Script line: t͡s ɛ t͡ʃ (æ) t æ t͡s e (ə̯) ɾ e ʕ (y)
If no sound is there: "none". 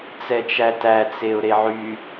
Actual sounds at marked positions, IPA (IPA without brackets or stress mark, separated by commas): æ, ʊ̯, y